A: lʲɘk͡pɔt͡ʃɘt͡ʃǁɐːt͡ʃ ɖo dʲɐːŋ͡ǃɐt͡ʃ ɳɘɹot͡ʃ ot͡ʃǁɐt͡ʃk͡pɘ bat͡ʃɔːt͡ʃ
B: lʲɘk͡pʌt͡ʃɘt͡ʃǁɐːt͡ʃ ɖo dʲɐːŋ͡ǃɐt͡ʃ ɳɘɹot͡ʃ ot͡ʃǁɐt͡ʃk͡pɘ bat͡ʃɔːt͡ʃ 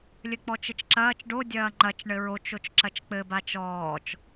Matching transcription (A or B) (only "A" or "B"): A